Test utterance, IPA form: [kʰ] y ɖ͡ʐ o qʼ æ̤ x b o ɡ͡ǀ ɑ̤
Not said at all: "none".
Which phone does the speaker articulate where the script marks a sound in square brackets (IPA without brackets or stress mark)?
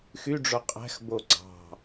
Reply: x